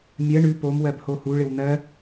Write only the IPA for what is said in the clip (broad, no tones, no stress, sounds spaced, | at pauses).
mʲ ɜ ɳ ʉ p o m w ɜ b h o h u ɭ ɪ w n̪ ɜ